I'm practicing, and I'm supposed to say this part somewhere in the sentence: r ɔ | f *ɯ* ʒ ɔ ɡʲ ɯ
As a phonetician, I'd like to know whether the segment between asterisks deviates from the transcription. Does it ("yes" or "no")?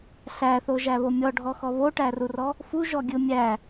yes